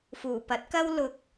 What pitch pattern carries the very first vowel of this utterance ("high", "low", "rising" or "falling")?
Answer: low